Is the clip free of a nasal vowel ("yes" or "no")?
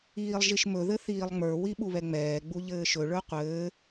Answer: yes